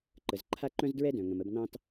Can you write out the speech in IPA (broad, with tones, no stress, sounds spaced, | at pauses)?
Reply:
ǃ ə˩ z ǃʰ a˥ ǃ œ̃˥ z d ɹ ɛ˥ d œ̃˩ ŋ ə̃˩ m ə˧ b n ɑ̃˥ t